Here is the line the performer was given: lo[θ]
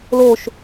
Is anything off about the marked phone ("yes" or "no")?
yes